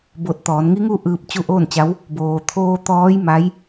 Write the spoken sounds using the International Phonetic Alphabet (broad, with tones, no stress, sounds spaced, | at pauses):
b o˧˩ t̚ t̪ ɔː˩˧ n ŋ i˧˥ ŋ u˥˨ ʔ ɯː˧ p̚ t͡ɕ u˧˥ ʔ oː˥˨ n t͡ɕ a˧˥ w | b oː˩ t̪ʰ oː˧ t̪ ɔː˧˥ j m a˧˥ j